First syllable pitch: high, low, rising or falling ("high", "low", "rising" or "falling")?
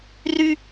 high